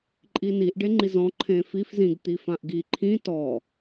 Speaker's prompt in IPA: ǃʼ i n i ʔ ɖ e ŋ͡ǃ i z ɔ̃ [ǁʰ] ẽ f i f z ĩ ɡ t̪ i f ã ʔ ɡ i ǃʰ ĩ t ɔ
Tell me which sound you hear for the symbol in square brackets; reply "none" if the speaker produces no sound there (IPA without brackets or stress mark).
ǃʰ